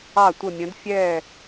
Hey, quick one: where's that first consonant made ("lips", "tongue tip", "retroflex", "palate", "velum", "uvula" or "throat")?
tongue tip